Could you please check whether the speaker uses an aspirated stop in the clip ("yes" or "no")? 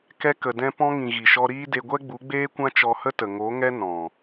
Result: no